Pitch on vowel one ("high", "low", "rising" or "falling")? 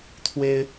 high